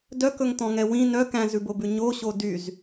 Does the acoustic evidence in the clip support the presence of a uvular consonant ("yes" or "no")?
no